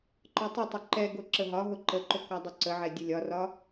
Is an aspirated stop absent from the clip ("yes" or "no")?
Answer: yes